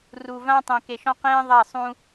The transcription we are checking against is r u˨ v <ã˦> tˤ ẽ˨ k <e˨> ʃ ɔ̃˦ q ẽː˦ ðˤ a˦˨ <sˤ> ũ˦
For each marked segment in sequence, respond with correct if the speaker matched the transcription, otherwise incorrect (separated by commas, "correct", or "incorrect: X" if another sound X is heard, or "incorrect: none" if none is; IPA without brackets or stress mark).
correct, correct, correct